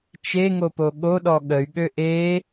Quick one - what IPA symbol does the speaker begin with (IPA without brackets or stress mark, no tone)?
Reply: t͡ʃ